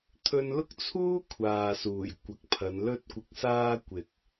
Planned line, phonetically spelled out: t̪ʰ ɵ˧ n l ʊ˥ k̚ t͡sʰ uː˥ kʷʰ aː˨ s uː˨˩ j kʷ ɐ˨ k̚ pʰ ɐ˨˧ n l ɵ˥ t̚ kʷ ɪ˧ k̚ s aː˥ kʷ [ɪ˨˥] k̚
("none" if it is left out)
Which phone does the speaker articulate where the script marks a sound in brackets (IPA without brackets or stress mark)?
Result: ɪ˨